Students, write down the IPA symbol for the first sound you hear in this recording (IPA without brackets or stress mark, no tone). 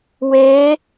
w